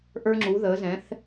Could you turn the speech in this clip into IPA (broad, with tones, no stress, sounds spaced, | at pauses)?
ʔ ə˞˧ ŋ͡ǁ u˩˧ ð ə˩˧ z ɛ̃˩˧ θ